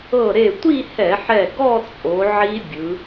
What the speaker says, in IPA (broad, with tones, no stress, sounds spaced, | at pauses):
ɤ˧˩ ɾ e˧˩ tʷ i˥˧ h ɛ˧˩˧ ħ ɛ˧˩ ɡ ɔ˥˧ t͡sʼ o˩˧ ʕ i˦˥ bʲ ɯ˩˧